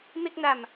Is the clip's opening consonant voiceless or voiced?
voiced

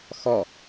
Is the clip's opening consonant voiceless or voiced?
voiceless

